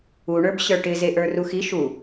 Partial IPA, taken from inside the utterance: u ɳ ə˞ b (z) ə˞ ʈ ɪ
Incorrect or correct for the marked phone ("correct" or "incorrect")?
incorrect